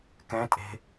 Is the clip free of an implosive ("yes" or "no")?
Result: yes